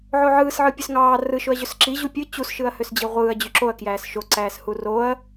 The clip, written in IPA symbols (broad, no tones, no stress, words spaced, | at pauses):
ʕoʕɯːsʕɯ pʲøsŋɑː rɯʃoɐ̯ʑøs ǁi ʑupʲɯ t͡ɕusʃɯɐ̯ høsd͡ʑiʁʷɯːɐ̯ d͡ʑyǁoɐ̯ kjæːsʃo ǀæːshuroɐ̯